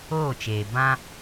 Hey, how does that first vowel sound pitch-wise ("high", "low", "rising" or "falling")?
falling